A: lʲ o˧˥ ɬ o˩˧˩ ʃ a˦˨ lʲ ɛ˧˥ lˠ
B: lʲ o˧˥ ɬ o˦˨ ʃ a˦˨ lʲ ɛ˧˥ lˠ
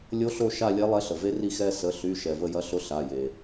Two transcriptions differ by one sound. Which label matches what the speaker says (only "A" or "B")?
B